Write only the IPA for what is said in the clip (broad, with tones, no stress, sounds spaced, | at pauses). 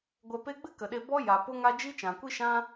ɡʷ ɛ˧ p e˦ ɡ͡b ɨ˦ k ə˨ ɗ e˧ b ɔ˦ j a˨ p o˦ ŋ a˦ d͡ʒ i˦ t͡ʃ ã˨ kʷ i˦ ʃ ã˦